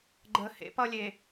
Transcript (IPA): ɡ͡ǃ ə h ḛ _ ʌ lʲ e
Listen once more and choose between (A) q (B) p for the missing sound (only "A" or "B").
B